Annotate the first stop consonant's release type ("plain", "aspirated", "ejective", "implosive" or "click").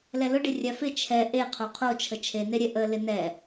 plain